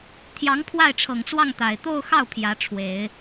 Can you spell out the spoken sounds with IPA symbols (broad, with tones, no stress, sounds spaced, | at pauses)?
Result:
t̪ʰ j ɑ˧˥ ŋ pʰ w a˥˩ ɪ̯ ʈ͡ʂʰ ɤ˨˩ ŋ t͡s w ɑ˥˩ ŋ t̪ a˨˩ ɪ̯ t̪ o˥˧ ʊ̯ x ɑ˥˩ ʊ̯ pʰ j ä˧˥ ʈ͡ʂʰ w e˨˩˦ ɪ̯